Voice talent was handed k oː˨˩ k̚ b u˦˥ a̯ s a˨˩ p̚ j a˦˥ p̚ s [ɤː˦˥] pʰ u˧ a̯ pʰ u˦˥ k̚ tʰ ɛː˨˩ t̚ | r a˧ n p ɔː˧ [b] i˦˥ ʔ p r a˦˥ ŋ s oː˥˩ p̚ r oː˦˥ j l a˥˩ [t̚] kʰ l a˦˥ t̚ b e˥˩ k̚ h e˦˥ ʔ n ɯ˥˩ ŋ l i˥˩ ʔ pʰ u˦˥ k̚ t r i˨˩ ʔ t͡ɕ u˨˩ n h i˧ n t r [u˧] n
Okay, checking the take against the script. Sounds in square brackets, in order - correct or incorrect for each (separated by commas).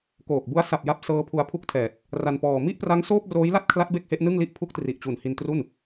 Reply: correct, incorrect, correct, incorrect